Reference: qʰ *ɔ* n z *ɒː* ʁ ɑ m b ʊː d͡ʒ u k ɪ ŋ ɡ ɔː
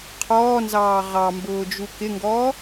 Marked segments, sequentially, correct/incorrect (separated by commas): incorrect, incorrect